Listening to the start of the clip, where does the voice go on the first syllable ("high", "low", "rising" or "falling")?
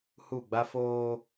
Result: falling